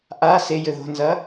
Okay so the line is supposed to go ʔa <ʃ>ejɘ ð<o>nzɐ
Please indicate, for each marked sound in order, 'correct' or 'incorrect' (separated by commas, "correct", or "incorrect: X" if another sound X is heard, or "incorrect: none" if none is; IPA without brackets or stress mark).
incorrect: s, incorrect: o̤